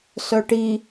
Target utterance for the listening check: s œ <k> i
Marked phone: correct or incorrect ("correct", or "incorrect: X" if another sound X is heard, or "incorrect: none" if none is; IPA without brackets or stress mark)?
incorrect: ʈ